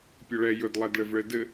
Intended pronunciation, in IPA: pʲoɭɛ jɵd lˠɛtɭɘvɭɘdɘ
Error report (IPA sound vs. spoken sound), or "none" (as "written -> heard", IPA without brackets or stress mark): t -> d